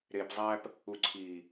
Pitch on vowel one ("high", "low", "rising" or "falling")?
low